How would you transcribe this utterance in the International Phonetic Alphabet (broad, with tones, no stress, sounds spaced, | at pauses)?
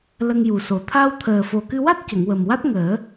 l ə˧ ŋ j u˨˩ s o˨˩ t̪ʰ a˧ w t̪ʰ əː˨˩ f o˨˩ k ɨ˧ w a˦˥ t̚ c ə˨˩˨ ŋ w ə˨˩ m w a˦˥ t̚ ŋ əː˨˩˦